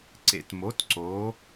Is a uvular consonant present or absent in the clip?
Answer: absent